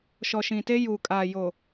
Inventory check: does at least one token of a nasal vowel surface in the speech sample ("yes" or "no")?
yes